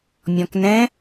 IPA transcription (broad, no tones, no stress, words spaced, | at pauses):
mʲɔ̃knɛ̃